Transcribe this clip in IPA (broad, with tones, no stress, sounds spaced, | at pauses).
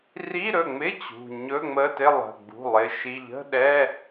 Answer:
r i˧˥˧ ɾ ɵ˩˧˩ ŋ͡m ɪ˧˥˧ t͡ɕ ṳ˩˧˩ ɲ ɵ˧˥˧ ŋ͡m ə˧˥˧ t ɪ˧˥˧ lˠ ə̤˩˧˩ ɡ͡b ṳ˩˧˩ lˠ ɪ˩˧˩ ʃ i˩˧˩ ʎ ə̤˧˥˧ ɗ ɛ˧˥˧